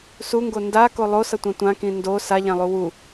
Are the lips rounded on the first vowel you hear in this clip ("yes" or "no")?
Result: yes